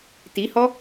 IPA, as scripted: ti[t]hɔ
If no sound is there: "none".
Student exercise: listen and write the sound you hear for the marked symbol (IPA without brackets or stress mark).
none